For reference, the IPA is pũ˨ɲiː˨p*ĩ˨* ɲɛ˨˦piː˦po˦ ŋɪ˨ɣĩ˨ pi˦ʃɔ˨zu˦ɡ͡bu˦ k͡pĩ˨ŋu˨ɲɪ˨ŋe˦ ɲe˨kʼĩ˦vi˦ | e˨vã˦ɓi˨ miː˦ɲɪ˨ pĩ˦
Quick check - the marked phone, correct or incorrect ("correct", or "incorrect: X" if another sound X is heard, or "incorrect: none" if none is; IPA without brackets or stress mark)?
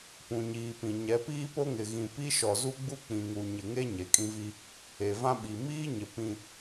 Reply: correct